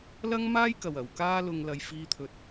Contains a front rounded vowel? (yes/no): no